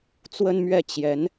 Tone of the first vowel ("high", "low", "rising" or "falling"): high